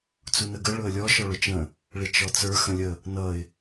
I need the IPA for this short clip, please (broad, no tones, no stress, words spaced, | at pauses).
t͡sunəɡə ɭʊə̯lʲɔ ʃɔɭʊt͡ʃə̃ | ɭɪt͡ʃɔt͡sə˞ xə̃lʲə | nʌɪ̯